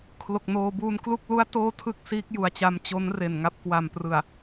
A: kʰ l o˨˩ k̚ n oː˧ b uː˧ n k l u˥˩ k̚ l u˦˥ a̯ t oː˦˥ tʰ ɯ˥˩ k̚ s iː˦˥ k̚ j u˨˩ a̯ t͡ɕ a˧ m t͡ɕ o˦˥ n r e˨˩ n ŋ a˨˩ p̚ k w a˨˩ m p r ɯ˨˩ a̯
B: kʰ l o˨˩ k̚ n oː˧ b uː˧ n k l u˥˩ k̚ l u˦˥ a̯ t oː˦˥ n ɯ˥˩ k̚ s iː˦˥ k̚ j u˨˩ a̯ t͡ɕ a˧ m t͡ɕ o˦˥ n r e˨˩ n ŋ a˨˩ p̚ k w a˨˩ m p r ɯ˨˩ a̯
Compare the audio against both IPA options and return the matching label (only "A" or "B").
A